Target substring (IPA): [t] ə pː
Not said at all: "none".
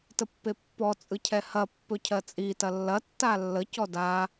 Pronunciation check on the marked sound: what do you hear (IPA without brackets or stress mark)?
t